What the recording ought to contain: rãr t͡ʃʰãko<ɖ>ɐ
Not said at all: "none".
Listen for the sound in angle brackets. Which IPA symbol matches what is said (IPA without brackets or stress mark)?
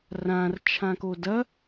d